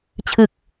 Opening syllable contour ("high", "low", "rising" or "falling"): low